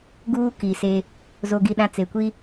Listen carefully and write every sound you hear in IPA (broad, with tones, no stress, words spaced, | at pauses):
ɡuː˦ki˨se˦ | zo˨ɡi˨ɗã˨ t͡se˨kʷi˦